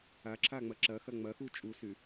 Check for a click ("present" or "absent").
present